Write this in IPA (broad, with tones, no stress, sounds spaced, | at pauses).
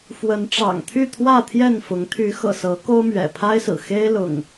f w ə˨˦ n ʈ͡ʂ ɑ̰˨˩ ŋ t̪ʰ y˥˨ t̪ʰ w ä˥˨ t̪ʰ j ɛ˥˨ n f ʊ˨˦ ŋ t̪ʰ y˨˦ x ɤ̰˨˩ s ɤ˨˦ k o˦ ʊ̯ m ɥ ɛ̰˨˩ pʰ a˦ ɪ̯ s ɹ̩˨˩ x e˦ ɪ̯ l ʊ̰˨˩ ŋ